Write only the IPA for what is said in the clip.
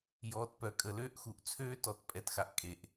jɔː˨tpœ˨kʼə˨ løː˦ʔxu˨ʔ t͡sʰøː˦tɔ˨t pʼɛ˨txa˨ʔ kʼe˨ʔ

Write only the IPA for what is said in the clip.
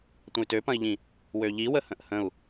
tʷə̃y̯tøpɐ̃i̯ʎĩ | wøʎiwə hə̃ʔhə̃u̯

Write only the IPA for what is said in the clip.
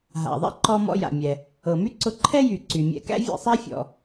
ɦa̰˩ðˤɛ̰˥ ǃɔ˧ mɔ̰˧ja̰˩mʲɛ˩ | ɤ˩my˥ǀʊ˧ ǃʰɛ˥jy˩ ǀy˩mʲɛ̰˧ kæ̰˥vʲɛ̰˧sˤæ˥fʲɔ̰˩

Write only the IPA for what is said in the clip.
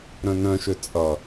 ɾœ̃nœ̃ʃø t͡sʼʌ

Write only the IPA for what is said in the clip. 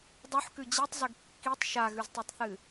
dˤuħkʉ d͡ʑitˤzɵɡ kːitˤ ʃaɣʉztˤɵtˤθɨ

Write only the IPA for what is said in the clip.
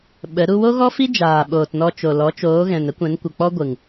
ɓə˨˦ ɾu˧wo˦ɣɔ˦fi˦ d͡ʒaː˨ɓoː˨tnɔ˧t͡ʃo˨ lɔ˨˦t͡ʃoː˨˦ɣɛ̃˨n ə˦kʷɛ̃˨˦n kʷə˨k͡pɔ˦ɡʷɨ˨ŋ

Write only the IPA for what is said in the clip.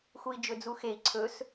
xui̯d͡ʒɵd͡zuxei̯ ǀʰɵs

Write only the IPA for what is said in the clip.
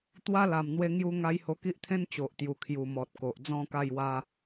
t̪wa˦la˨˩mn̪we˧ ŋju˧ŋa˧j ho˧ki˦ʔt̪ʰẽ˦n t͡ɕo˨ʔt̪ju˨˩ kʰju˨˩ mɔ˨t̚ ko˨ʔd͡zɔ̃˥˧ka˥˧jwa˦

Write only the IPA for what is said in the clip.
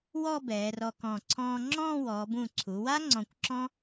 wɔ˥˧ bɛː˩˧rɔ˧kɔ̃˧˩ ǀʰɔ̃ː˧ŋ͡ǁɔ̃ː˥˧ wɔː˩˧bũ˧˩ǀʰu˩˧wa˥ ŋ͡ǀɔ̃˧kʷǁɔ̃˥

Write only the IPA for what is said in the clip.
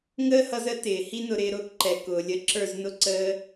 ŋəː˦hʌ˧zə˨˦ tɪː˨ hi˦nʊ˧ ɾɪː˧ ɾʊː˦kǃɛ˨ kʊː˨lʲə˧ ǁə˞˦˨znʊ˦ ǀəː˧

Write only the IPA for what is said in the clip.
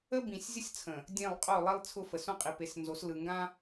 ə˦ bĩ˨sʲzʲə˦sʲt͡sʰə̃˨ | dʲẽ˦˨lˠ qʼo˦˨lˠi˦lˠt͡sʰʊ˦fə˨ sõ˦qʼi˨pe˨˦s nzo˨˦slɯ˨ŋɡã˦

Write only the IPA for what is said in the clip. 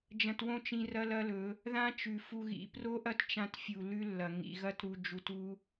d͡ʒɐ̃˧twõ˦t͡ʃ ĩ˧rɐ˦lɐ˦lɵ˨˦ | ðã˦t͡ʃʉ˨fu˧ ɣḭ˨ pro˦ʔɐ˦tt͡ʃã˧t fʲu˨lʉ˦lːɐ˨ ŋḭ˨ɣɐ˦tɾu˧ d͡ʒu˧tu˦

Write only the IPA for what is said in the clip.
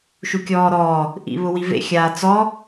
ʃukʲɔːɾɔː | ʔḭβʊwivḛ xʲaːt͡sɔ

